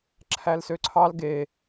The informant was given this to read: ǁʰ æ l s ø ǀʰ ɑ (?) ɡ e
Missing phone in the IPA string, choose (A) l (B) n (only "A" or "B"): A